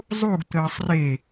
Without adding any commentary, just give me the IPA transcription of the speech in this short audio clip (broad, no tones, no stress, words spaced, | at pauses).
zˤuɡ t̪əːsˤre